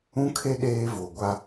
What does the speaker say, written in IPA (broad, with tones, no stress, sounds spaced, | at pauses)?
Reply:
ũ˦ kʰ e˦ ɗ eː˦ v o˨ ɡʷ a˦